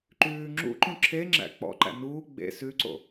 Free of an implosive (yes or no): yes